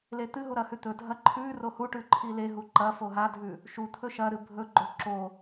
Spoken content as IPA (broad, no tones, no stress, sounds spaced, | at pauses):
l e t̪ ɨ ɦ u ɾ ɐ h ʉ t̪ ɵ dʱ ɐ ǃʰ ʉ r o h u ʈ ʉ ǃʰ i l e ɦ u ǃ ɐ f o ɦ a dʱ ʉ | ʃ u t̪ʰ ɵ ʃ ɐ ɾ ɨ bʱ ɵ ɡ͡ǃ o ǁ o